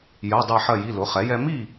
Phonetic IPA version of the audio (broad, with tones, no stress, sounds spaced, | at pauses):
j ɜ˩˧˩ dˤ ɛ˧˩ ħ ɜ˧˩ j i˩˧˩ l ʊ˩˥ χ ɛ˩˥ j ɛ˦ m i˥˨